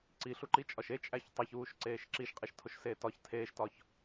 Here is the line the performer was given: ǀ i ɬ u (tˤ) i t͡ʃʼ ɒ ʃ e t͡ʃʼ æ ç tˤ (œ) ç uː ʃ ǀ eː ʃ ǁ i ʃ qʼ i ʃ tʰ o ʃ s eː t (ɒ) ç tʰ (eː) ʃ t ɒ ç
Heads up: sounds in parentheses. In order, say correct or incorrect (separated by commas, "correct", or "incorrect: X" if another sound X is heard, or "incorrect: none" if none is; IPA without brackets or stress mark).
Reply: incorrect: ǃ, incorrect: æ, correct, correct